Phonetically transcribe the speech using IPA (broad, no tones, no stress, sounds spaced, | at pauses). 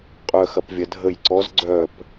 qʼ œ x ɐ p vʲ ɐ dʱ ə j ǀ ɔ z ɡ͡ǀ œ p